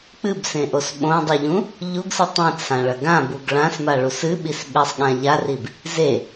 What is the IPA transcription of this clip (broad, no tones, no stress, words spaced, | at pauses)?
k͡pɨbsẽʔos ɓõdˤuʎũ | ʎuɡsɨ tˤĩt͡sʰãɭɐ ɡãbuɡ ɭãsmaɭus ɨɓis ɓesˤɠã ʎarib | ze